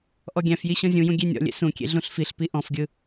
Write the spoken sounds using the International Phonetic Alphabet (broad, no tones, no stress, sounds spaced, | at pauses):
ʔ ɔ ɡʲ æ̃ f j i ɕ ɔ̃ zʲ ũ j ũ ɡʲ e nʲ ɔ̰ lʲ ḛ s ũ kʲ ḛ ɮ ũ ɬ f i ɬ p i ʔ ɔ̃ f ɡʲ ɯ